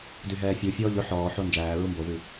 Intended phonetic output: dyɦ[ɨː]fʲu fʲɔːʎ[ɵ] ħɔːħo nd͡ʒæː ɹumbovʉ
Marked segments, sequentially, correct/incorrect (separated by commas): incorrect, correct